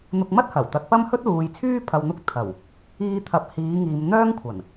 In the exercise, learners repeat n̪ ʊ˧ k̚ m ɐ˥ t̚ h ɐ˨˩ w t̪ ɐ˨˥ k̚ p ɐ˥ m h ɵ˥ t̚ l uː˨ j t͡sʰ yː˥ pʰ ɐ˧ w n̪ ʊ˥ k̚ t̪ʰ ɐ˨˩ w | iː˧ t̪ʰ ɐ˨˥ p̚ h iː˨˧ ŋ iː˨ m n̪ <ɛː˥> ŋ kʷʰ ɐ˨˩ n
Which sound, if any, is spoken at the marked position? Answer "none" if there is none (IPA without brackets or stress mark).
œː˥